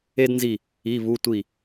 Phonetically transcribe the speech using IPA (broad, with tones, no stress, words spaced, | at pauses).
e˥dnzi˦˨ | i˧˥˧βu˧˥˧tʷi˦˨